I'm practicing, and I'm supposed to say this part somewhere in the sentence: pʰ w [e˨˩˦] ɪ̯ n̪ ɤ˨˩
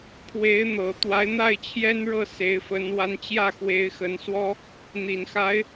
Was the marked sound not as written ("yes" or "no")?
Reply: yes